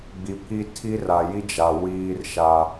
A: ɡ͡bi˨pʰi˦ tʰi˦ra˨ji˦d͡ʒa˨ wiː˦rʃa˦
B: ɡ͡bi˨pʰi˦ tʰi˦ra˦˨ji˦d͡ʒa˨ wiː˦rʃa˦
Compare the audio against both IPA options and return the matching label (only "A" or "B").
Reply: A